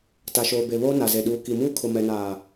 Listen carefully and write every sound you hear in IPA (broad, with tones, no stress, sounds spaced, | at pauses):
t a˨ ʃ oː˨ b e˨ β oː˦ n a˨ z e˨ ɗ uː˨ k i˨ m uː˦ kʰ ʊ˨ m ɛ˨ n aː˨